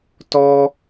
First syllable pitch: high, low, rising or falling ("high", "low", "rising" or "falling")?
high